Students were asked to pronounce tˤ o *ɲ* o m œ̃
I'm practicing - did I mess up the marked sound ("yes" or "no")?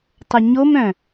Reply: no